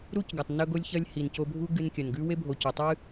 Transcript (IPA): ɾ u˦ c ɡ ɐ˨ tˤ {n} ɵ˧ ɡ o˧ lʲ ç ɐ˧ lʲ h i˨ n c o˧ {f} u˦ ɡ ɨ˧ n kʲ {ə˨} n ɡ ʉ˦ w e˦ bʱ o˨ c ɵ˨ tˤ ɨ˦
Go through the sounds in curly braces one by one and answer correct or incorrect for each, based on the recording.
correct, incorrect: bʱ, incorrect: ɐ˨

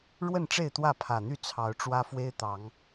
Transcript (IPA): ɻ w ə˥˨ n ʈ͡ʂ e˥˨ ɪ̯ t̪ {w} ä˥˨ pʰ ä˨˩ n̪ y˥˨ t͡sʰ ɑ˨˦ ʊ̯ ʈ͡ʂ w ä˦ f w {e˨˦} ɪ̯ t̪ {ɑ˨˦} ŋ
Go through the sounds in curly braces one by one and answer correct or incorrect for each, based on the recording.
correct, incorrect: e˦, correct

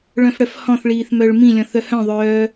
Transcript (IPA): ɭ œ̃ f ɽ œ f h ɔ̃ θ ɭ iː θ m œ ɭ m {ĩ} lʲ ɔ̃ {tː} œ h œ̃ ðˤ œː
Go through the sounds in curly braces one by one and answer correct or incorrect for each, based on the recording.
correct, incorrect: θ

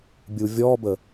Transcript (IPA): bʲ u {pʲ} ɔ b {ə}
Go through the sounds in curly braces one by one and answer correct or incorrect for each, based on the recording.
incorrect: vʲ, correct

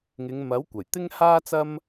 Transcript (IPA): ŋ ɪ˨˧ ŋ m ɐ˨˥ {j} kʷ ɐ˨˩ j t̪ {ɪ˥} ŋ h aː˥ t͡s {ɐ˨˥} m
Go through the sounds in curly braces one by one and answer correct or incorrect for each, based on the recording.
incorrect: w, correct, incorrect: ɐ˥

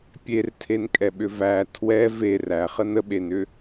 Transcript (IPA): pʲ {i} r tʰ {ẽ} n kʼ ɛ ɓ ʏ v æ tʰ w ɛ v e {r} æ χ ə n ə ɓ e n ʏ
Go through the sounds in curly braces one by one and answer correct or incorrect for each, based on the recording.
incorrect: e, incorrect: e, correct

